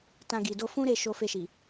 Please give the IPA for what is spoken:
t ã˧ ɡ i˨ d o˧ f ũ˦ ɾ e˦˨ ʃ o˧ f e˧ ʃ i˨

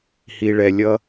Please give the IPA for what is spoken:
h i˩ ɭ ɛ˩ lʲ ʌ˧

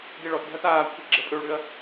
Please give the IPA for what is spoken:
d̪ e ɭ ɔ t ɖʱ ɐ t aː kʷʰ ɛ ɡ͡ǁ ə pʼ ø ɭ ɽ ʏ ɐ̯

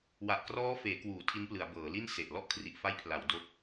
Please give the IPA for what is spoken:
w a˨˩ ʔ k r ɔː˦˥ f eː˩˦ k w uː˩˦ tʰ i˦˥ n p l ɯ˩˦ a̯ b ɤː˩˦ l i˥˩ n s e˨˩ ʔ l ɔ˥˩ ʔ kʰ r i˨˩ ʔ f a˦˥ j pʰ l a˩˦ w d o˦˥ k̚

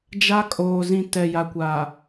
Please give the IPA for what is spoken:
d͡ʒ a˦ kʼ oː˨ z ĩ˦˨ t ɛ˨ j a˨ kʷ a˨

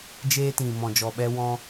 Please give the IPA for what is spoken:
d͡ʒ eː˧ t ĩ˨ m ɔ̃˨ d͡ʒ ɔ˨ ɓ ɛ˧ w ɔ̃˧

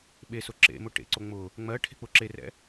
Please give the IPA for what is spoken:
ɓ e s ʊ ǁ ḛ m ʊ ʈ ḛ ǀ o ŋ͡m ʊ | ŋ͡m ɜ ʈʰ e̤ k͡p ʊ ǁ e r ɛ̰

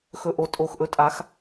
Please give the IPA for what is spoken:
x ɵ˨˩˦ ʔ o˩˥ tʼ o˨˩ x ʔ ɵ˩˥ tʼ a˨˩˦ x

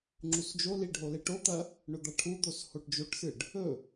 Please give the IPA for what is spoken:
ŋ͡ǁ u s d͡ʒ o l i ɖʱ o l e ʈ o t̪ ɐ | ɳ ɵ d̪ a ʈʰ u d̪ o s h o ʈ d͡ʒ o ʈ s ɨ ɖ | ɵ

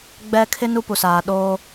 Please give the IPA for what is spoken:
ɡ͡b ɛ˦ kʰ ɪ˦ n u˦ p u˨ s aː˨ ɗ oː˦

